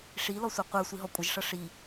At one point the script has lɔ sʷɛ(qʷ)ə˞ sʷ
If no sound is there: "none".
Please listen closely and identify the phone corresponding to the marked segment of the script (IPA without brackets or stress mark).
qʷ